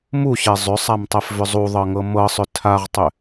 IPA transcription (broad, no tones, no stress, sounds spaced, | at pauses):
m u ɕ ɛ zˤ ʏ sˤ a m tˤ ɛ f v ʏ zˤ u ðˤ ɤ ŋ ɤ m ɤ sˤ ʏ tʰ a ʁ tˤ ʏ